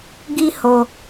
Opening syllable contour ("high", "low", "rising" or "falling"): high